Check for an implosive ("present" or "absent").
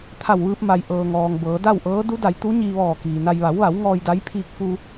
absent